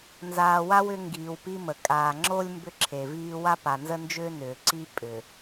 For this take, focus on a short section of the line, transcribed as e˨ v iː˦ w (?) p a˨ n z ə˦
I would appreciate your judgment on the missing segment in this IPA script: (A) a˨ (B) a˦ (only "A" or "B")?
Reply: B